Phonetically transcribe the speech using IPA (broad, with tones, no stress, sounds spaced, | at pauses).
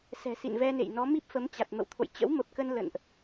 s ɛ̤˨˩ s ḭ˧˨ n v ɛ˧ n ḛ˧˨ j n ɔ˨˦ m i˦˥ p̚ f ə˨˦ m t͡ɕ a˨˩ t̚ m ə̰˧˨ w t̪ʰ o̰˧˨ j t͡ɕ ə̰˧˥ w m ə˨˩ p̚ k ə˧ n l ə̰˧˨ n ʔ